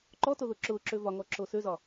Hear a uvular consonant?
no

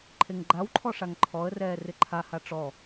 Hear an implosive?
no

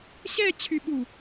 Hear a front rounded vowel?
yes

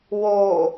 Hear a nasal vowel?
no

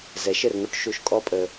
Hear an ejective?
yes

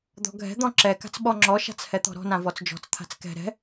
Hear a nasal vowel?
yes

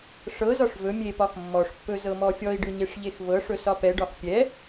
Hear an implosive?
no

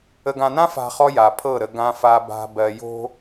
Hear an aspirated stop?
yes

